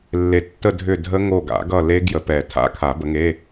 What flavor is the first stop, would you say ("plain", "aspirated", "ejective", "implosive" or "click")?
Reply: plain